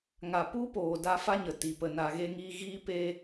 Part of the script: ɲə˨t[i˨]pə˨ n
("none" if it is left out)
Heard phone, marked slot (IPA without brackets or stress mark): i˨